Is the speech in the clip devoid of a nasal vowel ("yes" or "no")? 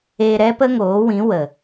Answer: no